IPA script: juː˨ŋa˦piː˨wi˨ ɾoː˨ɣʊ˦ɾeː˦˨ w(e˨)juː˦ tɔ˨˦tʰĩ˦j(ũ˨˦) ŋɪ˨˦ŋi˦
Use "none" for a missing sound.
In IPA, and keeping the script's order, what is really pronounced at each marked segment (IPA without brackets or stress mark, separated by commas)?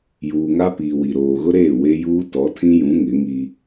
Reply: e˦, ũ˨˦